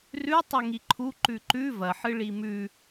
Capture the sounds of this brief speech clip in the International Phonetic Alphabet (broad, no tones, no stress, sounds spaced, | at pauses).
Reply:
r ʉ tˤ ɵ ŋ i ǃʰ u ǃ ʉ ǃ ʉ v ɐ ħ ɨ ɭ i m ʉ